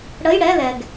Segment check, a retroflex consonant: present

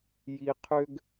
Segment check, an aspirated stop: present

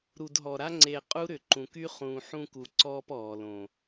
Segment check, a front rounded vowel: present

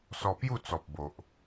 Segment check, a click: absent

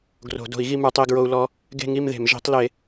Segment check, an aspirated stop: absent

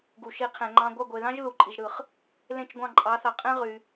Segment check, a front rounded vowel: present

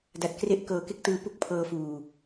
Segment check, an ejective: absent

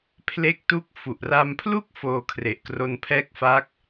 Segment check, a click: absent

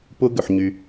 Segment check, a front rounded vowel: present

